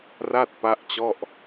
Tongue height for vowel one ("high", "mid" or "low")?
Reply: low